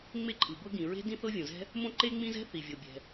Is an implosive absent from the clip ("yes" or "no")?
yes